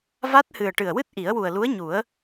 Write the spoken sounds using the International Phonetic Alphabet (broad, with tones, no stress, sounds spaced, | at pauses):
v a˦˥ t̚ h ɨ˨˩ ə̯ ʈ ɨ˨˩ ə̯ w ɨ˦˥ t̚ ʔ i˨˩˦ ə̯ w u˨˩ ə̯ l u˧˥ ə̯ ɲ u˨˩˦ ə̯